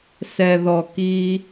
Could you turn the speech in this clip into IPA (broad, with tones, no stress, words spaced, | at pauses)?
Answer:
sɛ˧ðɔ˧ ki˦